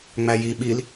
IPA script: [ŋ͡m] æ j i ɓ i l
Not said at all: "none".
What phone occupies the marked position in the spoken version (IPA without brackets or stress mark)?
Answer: ŋ͡m